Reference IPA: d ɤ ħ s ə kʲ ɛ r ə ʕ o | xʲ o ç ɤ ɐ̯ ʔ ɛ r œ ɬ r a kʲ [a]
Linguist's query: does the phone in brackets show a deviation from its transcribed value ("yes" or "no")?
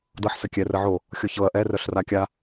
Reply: no